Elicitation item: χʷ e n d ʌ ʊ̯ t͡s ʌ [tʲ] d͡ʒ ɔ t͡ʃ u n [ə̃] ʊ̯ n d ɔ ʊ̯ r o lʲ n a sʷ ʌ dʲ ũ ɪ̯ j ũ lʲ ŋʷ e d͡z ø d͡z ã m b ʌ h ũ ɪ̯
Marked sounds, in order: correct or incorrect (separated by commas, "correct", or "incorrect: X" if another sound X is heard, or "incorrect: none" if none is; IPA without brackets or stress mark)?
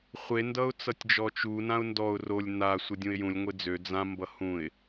correct, incorrect: ã